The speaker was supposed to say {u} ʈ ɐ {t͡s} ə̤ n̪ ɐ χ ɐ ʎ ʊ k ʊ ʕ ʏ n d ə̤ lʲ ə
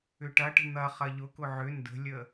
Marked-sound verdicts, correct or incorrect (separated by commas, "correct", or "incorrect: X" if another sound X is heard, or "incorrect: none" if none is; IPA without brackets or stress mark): incorrect: ʏ, incorrect: ʈ